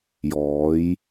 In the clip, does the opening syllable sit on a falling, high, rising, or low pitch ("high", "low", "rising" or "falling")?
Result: rising